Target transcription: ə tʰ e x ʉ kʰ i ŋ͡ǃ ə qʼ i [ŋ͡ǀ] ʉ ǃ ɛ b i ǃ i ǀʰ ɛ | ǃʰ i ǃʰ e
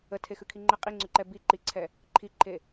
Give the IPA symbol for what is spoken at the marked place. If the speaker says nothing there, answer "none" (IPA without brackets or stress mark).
ŋ͡ǀ